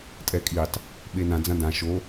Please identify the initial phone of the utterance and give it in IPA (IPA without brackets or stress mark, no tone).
tʼ